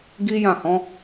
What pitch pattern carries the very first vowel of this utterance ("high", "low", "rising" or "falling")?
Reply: high